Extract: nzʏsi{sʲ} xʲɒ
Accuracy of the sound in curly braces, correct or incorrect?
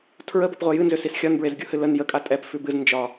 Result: incorrect